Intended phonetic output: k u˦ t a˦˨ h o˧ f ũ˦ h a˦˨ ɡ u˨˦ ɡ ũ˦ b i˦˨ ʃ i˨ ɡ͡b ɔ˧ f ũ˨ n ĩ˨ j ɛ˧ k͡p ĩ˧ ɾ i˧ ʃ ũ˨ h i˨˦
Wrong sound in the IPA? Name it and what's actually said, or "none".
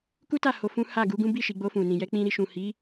ɔ˧ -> o˧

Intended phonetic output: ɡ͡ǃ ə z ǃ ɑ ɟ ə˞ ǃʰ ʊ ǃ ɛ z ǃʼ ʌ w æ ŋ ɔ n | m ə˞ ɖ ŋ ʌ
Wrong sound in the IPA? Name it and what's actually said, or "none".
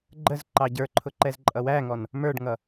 none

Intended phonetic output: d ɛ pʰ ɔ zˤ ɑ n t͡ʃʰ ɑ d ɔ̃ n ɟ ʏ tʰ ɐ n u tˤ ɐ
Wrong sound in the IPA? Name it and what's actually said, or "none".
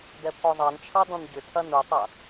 none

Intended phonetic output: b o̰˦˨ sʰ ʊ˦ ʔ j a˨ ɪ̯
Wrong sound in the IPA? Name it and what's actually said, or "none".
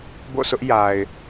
none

